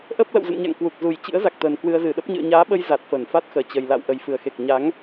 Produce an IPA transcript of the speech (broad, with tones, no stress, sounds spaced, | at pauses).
ʔ əː˦˥ p̚ l ə̰˧˨ w z ə̰˧˨ n ɲ a̰˧˨ ŋ k w u˨˩ k̚ z u˨˩ j t͡ɕ ɨ̰˧˥ ə̯ z a˨˩ k̚ t̪ əː˨˩ n k w ɨ˧ ə̯ z ɨ˨˩ ɗ ə˦˥ p̚ ɲ ɨ̰˧˨ ə̯ ɲ aː˨˦ ɓ ə˧ j z a˨˩ t̚ f əː˧˩ n f a˦˥ t̚ x əː˨˩ t͡ɕ ə˨˩ j l a̰˧˨ w ʔ ə˨˩ j f ɨ˨˩ ə̯ x e˨˩ k̚ ɲ a˨˦ ŋ